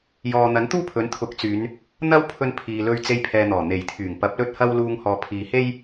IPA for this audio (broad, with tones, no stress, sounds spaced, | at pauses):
j ɔː˨ n̪ ɐ˨˥ n t̪ uː˥ pʰ ɵ˨˥ n t̪ʰ ʊ˨˥ k̚ t͡s yː˨˧ n | n̪ ɐ˥ w pʰ ɵ˧ n pʰ iː˨ l ɵ˧ ɥ t͡s e˧ j pʰ ɛː˨ n̪ ɔː˨˩ n̪ e˨˩ j t̪ʰ yː˨˩ ŋ p ɐ˨˥ p̚ l ɵ˥ t̚ h ɐ˥ w l uː˧ ŋ h ɔː˨ pʰ iː˨ h e˥ j